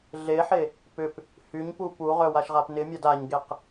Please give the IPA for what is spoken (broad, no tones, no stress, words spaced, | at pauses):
ɮeħe | pʏp | hyɲpu puʁœ waʃʁapnɪmʲad aɲɡeq